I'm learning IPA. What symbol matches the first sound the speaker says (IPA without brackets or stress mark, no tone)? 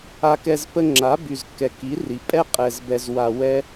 a